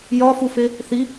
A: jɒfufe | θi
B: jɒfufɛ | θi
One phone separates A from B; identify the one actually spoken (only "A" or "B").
A